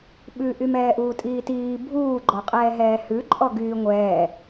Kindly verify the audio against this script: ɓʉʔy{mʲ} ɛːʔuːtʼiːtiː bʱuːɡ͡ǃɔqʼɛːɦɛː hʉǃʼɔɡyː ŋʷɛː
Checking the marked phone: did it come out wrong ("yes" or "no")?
yes